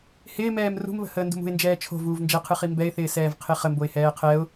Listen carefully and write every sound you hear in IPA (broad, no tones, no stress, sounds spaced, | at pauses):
h ɪː m ɛː m r ṳ m β ə̤ h əː n d ṳ m ṳ ɪ̯ n d͡ʒ ɛː t͡ʃʰ o̤ v uː v n d͡ʒ ɛ qʰ ɨ χ i m b ɛ ɪ̯ θ ɪː s ɛː v qʰ e χ ə m b o ɪ̯ h ɛː qʰ ɛ ʊ̯